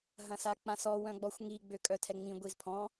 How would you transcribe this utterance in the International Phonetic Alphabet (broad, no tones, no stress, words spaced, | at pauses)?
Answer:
ɦɐ̃sak͡pãsɔ wœ̃ɡ͡bɔxʷŋi ɡ͡bøkʼœtʰɛŋ͡mĩ ɡʷizpʰɔ̃